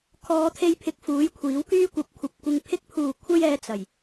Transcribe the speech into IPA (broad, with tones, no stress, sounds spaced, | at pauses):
kʰ ɔː˨˧ t̪ʰ e˧ j pʰ ɪ˨˥ k̚ f uː˨˥ j kʷʰ iː˨˥ w k yː˥ kʷ ɐ˨ p̚ kʷʰ ɐ˨ p̚ kʷ ɪ˧ ŋ pʰ ɪ˧ k̚ pʰ uː˨˩ kʷʰ ɐ˧ j ɛː˨ t͡s ɐ˨˩ j